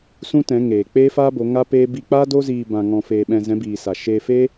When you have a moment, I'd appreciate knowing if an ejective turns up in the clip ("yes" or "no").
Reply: no